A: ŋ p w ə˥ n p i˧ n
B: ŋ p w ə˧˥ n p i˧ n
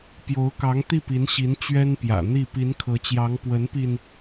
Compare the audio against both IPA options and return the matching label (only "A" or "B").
B